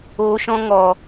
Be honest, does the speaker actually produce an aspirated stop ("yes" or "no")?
no